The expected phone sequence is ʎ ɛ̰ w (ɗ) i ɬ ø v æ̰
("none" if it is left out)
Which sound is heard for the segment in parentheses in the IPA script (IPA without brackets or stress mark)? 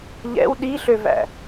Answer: ɗ